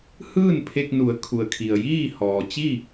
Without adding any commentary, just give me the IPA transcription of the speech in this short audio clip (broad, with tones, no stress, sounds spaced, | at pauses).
h ɯː˥˨ n pʰ e˧ k̚ n u˩˧ ə̯ kʰ u˩ ə̯ kʰ i˩ ə̯ j iː˥˨ h ɔː˩ t͡ɕ i˥˨